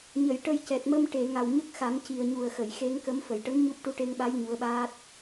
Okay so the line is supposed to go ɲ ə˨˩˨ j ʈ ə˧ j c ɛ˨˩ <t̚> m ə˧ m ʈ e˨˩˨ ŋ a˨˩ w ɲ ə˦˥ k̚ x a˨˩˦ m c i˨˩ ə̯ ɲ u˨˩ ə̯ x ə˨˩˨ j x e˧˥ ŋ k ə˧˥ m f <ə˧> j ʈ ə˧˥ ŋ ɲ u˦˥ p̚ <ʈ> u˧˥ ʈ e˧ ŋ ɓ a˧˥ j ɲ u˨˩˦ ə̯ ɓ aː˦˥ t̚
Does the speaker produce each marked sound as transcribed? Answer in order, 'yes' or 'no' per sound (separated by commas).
yes, no, yes